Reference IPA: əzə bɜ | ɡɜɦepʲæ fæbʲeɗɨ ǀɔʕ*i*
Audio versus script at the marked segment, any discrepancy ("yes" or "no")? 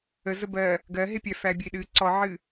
yes